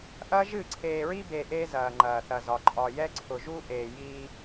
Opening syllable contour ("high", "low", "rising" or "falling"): high